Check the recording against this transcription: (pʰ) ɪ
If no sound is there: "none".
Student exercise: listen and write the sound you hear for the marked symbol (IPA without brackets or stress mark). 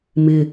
m